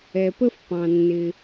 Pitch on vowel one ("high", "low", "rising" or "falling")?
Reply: low